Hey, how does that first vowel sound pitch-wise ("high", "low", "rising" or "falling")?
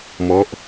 falling